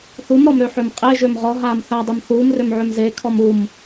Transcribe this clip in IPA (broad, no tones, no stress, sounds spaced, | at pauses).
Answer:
θ u m ɾ ɔ m ɾ ø ħ ø m qʼ e ʒ ø m ʁ ɔ ɦ aː m θ a dˤ e m θ uː m r ø m ʕ ø m z e kʰ ɔ m u m